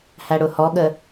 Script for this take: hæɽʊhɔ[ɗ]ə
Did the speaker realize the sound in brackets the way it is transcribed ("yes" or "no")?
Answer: no